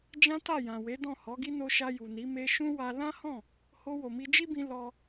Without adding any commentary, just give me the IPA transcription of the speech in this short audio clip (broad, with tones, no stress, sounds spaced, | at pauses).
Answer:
d͡ʒ ã˦ t a˦˨ j ã˨ w e˨˦ d ɔ̃˦˨ h ɔ˨˦ ɡ i˦ n o˧ ʃ a˧ j u˨ n i˨˦ m e˧ ʃ ũ˦ w a˧ l ã˦ h ɔ̃˦˨ | h o˧ w o˨ m i˧ d͡ʒ i˦ b ĩ˧ l ɔ˧